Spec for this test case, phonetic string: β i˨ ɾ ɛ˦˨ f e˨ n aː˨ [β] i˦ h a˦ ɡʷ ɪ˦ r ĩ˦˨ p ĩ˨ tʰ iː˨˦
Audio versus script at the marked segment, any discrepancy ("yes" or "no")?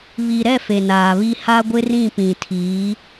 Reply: no